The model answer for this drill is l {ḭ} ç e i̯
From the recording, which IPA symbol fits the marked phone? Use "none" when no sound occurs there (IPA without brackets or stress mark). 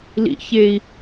ḭ